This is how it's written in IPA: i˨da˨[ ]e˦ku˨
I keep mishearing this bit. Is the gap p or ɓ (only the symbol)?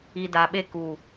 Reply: ɓ